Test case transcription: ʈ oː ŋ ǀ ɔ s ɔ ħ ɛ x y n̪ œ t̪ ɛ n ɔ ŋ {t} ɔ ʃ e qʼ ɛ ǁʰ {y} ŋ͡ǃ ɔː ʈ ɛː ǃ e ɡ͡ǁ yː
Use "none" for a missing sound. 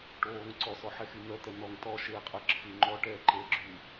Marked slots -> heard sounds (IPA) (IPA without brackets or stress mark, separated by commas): t, y